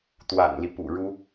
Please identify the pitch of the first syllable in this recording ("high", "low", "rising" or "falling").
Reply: low